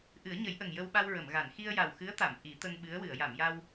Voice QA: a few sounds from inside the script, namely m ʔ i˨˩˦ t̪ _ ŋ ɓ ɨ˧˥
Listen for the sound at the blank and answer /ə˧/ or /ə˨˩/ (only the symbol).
ə˧